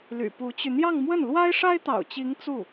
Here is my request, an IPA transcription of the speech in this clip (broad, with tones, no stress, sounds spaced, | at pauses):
l y̰˨˩ p u˧˥ t͡ɕ y˧ n̪ j ɑ˥˧ ŋ m w ə˥˩ n l w a˥ ɪ̯ ʂ a˥ ɪ̯ t̪ ɑ̰˨˩ ʊ̯ t͡ɕ i˧˥ ŋ t͡s u˥˩